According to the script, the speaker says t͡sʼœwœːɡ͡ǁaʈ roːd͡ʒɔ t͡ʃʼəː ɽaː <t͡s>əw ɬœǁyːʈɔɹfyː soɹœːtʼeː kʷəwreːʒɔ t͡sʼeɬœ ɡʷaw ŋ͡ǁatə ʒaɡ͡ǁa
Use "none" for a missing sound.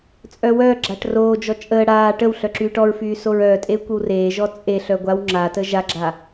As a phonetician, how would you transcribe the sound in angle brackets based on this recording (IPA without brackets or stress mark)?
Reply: ʈ